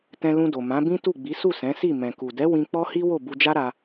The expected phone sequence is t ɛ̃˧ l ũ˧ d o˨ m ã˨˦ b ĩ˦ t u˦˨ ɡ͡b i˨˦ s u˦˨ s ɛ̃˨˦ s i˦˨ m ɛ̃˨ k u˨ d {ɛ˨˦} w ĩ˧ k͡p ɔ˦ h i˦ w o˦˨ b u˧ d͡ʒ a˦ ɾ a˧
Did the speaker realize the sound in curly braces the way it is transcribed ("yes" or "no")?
yes